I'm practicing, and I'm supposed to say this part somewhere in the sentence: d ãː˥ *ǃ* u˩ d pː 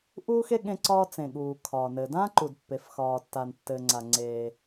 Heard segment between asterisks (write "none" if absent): ǃ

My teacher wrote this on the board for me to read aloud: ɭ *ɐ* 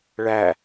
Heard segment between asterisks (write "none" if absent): æ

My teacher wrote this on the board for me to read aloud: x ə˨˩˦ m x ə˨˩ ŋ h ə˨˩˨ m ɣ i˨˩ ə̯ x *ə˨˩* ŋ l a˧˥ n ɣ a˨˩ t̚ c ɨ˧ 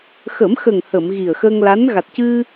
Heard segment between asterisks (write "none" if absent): ə˧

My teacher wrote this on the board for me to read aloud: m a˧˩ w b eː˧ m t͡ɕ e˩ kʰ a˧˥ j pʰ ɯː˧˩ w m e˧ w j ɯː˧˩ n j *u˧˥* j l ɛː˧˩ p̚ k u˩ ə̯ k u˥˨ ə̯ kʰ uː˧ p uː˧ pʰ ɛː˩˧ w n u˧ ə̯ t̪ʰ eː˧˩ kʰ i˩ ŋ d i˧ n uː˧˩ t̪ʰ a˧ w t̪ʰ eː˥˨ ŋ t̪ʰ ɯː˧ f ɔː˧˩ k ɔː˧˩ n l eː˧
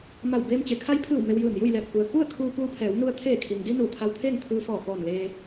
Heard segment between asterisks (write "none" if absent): u˥˨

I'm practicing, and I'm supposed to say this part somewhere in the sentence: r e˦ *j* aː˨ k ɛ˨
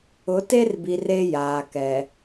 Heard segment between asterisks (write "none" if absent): j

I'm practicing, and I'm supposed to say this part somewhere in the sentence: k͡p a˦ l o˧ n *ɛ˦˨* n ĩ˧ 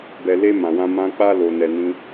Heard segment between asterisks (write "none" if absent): ɛ˧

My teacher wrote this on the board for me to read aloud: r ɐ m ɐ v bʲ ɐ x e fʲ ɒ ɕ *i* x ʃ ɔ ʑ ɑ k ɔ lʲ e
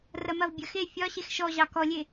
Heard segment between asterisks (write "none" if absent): e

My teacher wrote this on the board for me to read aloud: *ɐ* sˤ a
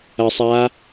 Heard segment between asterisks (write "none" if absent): ɐ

